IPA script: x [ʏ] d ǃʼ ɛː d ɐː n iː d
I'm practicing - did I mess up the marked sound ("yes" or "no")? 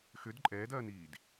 no